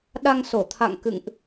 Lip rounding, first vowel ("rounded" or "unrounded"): unrounded